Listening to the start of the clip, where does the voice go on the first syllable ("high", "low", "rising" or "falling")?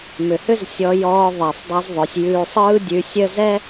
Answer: low